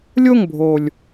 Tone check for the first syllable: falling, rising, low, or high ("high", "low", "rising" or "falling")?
falling